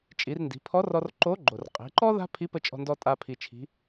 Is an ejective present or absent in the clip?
present